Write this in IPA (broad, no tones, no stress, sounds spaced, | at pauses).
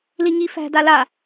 l i ŋ i f æ̤ d a l a